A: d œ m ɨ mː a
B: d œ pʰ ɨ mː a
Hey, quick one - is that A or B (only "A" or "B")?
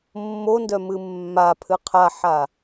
A